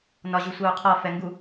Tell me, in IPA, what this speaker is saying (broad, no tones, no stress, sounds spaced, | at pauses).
n ɒ ʑ u sʷ ɜ u̯ qʰ ɔ f ɛ ŋ ɡ u